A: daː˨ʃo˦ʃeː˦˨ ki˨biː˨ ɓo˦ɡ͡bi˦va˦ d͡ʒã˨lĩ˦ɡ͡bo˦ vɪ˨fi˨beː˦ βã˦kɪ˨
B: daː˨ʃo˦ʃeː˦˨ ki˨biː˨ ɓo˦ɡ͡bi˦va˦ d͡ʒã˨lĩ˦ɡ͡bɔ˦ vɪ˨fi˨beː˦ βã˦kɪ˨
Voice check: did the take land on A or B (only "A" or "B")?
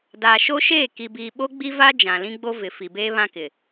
A